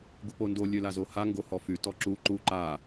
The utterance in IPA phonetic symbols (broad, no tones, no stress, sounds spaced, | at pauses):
ɡ u p o n d o lʲ ø l a z o h a ŋ ɡ o h ɔ f y t ɔ ǁ u ǃ u ǃ a